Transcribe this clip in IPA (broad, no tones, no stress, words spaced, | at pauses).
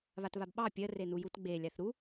βatβabɓɑ pʲɜ renujut ɡ͡belʲaθ ɾu